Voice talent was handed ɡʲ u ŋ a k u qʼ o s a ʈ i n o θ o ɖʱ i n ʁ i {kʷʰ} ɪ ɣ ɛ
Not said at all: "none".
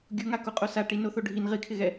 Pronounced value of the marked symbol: kʰ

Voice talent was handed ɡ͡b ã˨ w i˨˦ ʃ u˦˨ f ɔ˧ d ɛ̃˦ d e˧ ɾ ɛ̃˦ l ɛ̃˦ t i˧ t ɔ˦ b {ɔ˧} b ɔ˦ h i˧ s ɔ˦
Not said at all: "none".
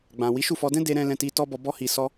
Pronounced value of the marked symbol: ɔ˧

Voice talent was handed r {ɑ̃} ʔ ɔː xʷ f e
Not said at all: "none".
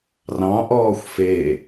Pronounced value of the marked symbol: ɑ̃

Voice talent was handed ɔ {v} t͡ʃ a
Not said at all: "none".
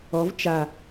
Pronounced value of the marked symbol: v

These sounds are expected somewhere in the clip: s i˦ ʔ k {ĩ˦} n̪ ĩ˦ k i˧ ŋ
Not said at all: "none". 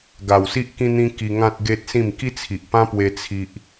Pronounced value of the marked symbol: ĩ˦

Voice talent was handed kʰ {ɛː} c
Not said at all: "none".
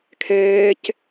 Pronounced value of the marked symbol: ɛː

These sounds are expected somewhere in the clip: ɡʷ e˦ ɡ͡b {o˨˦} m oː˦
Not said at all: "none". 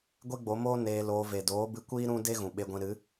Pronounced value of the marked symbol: o˨˦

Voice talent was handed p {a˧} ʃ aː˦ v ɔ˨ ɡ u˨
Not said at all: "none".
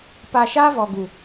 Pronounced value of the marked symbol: a˧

